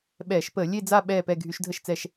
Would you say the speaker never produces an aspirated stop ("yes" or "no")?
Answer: yes